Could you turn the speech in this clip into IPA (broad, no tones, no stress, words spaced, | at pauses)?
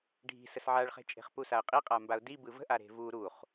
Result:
ɖʱi̤ səsʕaɭχe̤ t͡ʃʼe̤χpusaə̯qʼi qʼambaʊ̯di bɯvə̤ʔa ɾe̤vu ɾuχ